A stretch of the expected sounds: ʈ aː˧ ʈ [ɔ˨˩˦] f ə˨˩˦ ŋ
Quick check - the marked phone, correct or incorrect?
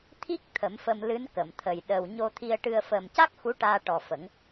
incorrect